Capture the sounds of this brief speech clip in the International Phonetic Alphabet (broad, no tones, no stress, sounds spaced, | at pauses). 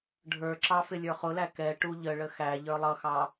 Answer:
ɖʱ ə˞ ǁ ɑ f ɪ lʲ ə˞ χ ʊ l æ k ɛ ʈ u ʎ ə ɭ ə x æ ʎ ə˞ lˠ ʌ x ɑ